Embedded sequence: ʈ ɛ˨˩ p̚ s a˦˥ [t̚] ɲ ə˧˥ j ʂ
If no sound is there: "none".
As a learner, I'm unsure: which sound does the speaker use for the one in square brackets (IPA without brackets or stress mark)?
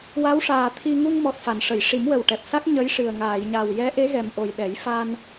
k̚